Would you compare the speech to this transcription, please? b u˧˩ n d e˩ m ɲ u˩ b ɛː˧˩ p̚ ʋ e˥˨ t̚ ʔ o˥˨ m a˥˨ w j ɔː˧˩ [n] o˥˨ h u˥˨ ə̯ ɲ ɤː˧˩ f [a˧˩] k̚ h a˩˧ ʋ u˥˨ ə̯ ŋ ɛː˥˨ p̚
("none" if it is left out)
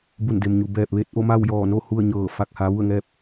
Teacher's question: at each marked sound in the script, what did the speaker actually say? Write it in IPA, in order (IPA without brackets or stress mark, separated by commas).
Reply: n, a˧˩